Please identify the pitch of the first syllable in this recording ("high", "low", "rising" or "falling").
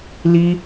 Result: high